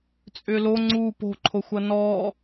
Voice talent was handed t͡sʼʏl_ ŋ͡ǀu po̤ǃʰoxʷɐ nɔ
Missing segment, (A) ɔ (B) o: B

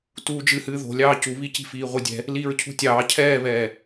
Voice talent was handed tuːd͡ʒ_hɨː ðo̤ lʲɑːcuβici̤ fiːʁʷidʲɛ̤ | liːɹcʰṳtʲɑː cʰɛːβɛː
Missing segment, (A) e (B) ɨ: B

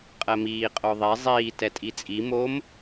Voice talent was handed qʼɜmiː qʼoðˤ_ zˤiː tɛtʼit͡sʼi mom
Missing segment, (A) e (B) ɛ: A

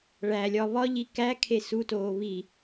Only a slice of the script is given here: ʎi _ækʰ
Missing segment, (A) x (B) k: B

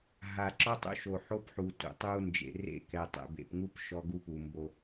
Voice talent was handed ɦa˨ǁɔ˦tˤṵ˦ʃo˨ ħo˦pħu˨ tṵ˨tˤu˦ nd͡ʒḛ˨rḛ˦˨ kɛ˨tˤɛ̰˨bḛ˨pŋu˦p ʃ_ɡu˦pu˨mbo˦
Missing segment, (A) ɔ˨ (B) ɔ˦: B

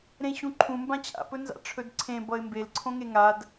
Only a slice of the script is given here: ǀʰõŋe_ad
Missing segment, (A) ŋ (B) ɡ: A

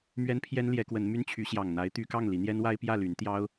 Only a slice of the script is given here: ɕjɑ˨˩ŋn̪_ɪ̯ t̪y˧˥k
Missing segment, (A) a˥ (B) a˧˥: B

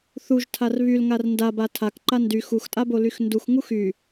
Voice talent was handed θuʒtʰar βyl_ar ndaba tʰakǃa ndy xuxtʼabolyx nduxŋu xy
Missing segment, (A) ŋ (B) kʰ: A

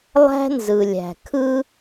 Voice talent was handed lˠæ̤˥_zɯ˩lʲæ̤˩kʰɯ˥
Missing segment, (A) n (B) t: A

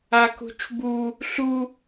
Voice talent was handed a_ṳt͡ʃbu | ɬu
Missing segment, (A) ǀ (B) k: B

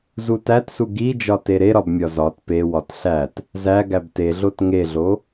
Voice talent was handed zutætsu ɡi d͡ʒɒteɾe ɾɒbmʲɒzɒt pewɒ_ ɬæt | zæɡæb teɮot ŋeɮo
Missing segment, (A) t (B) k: A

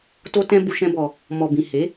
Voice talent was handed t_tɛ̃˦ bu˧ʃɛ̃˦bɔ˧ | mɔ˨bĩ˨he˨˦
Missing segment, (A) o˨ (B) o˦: B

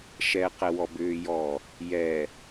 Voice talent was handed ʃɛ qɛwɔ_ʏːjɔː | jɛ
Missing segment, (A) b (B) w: A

